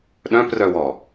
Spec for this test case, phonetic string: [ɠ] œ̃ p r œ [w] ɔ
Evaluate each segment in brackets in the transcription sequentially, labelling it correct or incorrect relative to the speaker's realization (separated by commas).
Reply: incorrect, correct